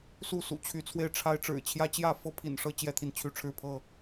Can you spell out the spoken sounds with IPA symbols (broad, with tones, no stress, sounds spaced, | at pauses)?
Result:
s u˥˨ s ṵ˨˩ t͡ɕʰ y˨˦ t͡sʰ w e˧ ɪ̯ ʈ͡ʂʰ a˦ ɪ̯ ʈ͡ʂ ɻ̩˨˩ t͡ɕʰ j ä˦ t͡ɕ j ä˥˨ f ɤ˦ pʰ ḭ˨˩ n ʂ ɤ˦ t͡ɕ j ɛ˦ t̪ʰ i˨ n t͡ɕʰ y˦ ʈ͡ʂʰ ɻ̩˥˨ pʰ ɤ˥˨